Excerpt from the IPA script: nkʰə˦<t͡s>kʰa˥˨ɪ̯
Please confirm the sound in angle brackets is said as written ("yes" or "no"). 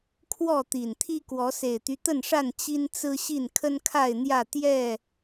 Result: no